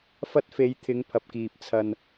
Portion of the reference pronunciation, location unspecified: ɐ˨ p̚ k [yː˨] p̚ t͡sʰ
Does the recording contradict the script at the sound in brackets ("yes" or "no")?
yes